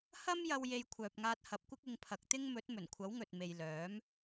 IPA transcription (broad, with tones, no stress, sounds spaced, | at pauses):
h ɐ˥ m j ɐ˧ w j e˧ j kʷʰ œː˨ p̚ ŋ aː˧ t̚ h ɐ˨˥ p̚ kʷ ɪ˥ k̚ ɪ˧ ŋ pʰ ɐ˨˥ k̚ t̪ ɪ˥ ŋ m ɵ˨˥ t̚ m ɵ˨˩ n kʷʰ ɐ˨˥ w ŋ ɵ˨ t̚ m e˨ j l œː˨˥ m